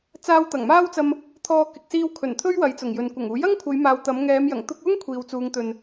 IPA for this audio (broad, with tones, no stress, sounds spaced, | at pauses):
t͡s aː˧ w t̪ ɐ˨˩ ŋ m aː˥ w t͡s ɐ˧ m | t̪ʰ ɔː˧ k ɪ˨ k̚ s iː˧ w kʰ ɵ˨˩ n t̪ʰ ɵ˥ ɥ w ɐ˨˧ j t͡s ʊ˨˩ ŋ j ɵ˨ n kʷ ɐ˨˩ ŋ uː˨˥ j ɐ˥ ŋ kʷʰ ɐ˨˧ j m aː˨ w t̪ ɐ˨˧ m ŋ ɛː˨˧ m j ɐ˨˩ ŋ t̪ ʊ˧ k̚ w ʊ˥ ŋ kʷʰ iː˨ w t͡s uː˨˧ ŋ t̪ ɵ˨ n